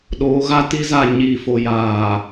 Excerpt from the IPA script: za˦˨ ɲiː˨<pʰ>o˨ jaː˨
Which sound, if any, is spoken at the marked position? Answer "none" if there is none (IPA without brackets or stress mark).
f